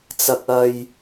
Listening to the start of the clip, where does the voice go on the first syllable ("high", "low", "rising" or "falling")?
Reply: high